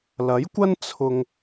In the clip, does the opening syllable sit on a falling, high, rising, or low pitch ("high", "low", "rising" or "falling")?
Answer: rising